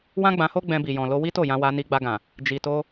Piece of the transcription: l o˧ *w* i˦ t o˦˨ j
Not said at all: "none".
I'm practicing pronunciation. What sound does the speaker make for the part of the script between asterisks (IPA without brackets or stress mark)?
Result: w